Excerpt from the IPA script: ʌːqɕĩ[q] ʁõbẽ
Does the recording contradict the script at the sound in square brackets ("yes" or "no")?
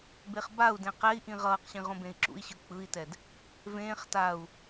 yes